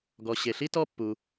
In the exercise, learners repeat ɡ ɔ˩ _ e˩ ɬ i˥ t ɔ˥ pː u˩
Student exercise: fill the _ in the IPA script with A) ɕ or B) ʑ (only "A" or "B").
A